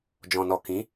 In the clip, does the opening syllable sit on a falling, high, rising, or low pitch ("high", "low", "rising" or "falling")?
low